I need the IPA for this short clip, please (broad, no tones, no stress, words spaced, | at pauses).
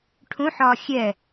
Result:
ʈʰũħɒː xʲɛ